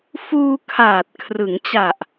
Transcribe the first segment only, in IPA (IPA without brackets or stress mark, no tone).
f